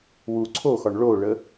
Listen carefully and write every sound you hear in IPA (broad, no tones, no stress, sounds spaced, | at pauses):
w u ǀʰ o x ɒ ɳ ɭ o ɭ ə